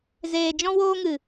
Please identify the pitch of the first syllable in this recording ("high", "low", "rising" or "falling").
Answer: low